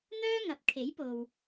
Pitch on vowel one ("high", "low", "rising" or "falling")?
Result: high